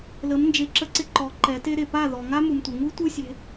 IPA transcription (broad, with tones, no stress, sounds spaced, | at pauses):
l ə˨˦ m n d͡ʒ e˨˦ ǁ ə˧ ǀ ɪ˧ ǃ ɔ˨˦ ǃ ɛ˨˦ t e˦ ɾ e˨ p a˦˨ ð ɔ˨ ŋ a˦ m u˨ m tʷ ɪ˨ ŋ u˦ tʷ ɯ˦ sʲ e̤˧